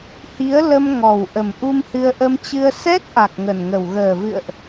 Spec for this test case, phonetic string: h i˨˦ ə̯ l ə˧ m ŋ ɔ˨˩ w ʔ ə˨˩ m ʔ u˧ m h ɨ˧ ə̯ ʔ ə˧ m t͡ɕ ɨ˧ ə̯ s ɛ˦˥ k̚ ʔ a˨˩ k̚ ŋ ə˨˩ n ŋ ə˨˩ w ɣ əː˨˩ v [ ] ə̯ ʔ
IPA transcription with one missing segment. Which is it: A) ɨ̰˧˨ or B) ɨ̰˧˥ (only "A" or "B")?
A